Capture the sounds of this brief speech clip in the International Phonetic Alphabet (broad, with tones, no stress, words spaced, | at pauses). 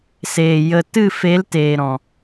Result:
seː˨ jə˨ tɨ˦˨fe˨˦lteː˨ɾɔ̃˨